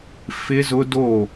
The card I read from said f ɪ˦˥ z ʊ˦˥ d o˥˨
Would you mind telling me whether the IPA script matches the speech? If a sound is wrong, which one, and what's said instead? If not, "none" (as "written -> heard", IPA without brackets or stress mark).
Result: none